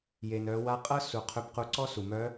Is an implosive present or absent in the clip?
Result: absent